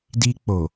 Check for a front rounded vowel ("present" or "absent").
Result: absent